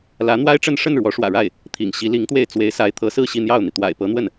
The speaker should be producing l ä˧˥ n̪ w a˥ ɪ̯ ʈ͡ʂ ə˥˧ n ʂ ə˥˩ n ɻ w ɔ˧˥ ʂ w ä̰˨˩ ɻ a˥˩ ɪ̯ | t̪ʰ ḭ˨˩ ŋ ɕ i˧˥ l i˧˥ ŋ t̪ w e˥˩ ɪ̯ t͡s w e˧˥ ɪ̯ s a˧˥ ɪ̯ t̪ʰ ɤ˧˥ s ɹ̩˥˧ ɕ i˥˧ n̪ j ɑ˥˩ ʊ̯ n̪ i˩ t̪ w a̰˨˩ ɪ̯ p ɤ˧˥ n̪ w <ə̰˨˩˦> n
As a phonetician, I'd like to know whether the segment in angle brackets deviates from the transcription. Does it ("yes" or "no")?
yes